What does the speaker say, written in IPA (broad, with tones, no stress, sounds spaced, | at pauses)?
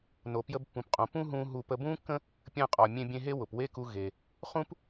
n o˩ p j ə˧ b pː ũ˩ p qʼ õ˩ p ũ˥ ɦ ũː˧ ɦ u˧ p ə˧ b ũː˥ kː ə̃˥ | pʲ ə̃ː˧ qʼ ɒ˩ mʲ ẽ˧ bʲ ẽ˧ ɦ e˥ w ʊ˩ p w e˥ k u˧ ɣ e˩ | χ ũ˥ p